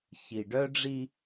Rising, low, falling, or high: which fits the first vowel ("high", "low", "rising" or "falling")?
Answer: low